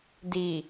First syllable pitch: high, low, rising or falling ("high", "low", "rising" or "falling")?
low